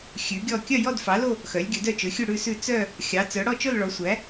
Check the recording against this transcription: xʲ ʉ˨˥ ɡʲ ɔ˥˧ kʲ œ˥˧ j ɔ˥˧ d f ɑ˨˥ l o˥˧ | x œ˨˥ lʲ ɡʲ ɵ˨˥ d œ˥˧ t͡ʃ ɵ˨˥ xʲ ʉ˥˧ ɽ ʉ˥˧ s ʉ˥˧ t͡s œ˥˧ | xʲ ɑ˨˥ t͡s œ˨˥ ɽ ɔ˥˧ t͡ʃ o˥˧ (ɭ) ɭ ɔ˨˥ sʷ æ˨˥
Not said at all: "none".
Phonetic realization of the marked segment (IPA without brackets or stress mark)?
l